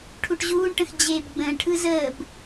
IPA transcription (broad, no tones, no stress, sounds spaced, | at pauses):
ʈʰ u ʈ ʑ uː ɳ ʈ ə̃ x d͡ʑ eː b ɡ͡b ə̃ː ɳ ʈʰ ɯ z əː b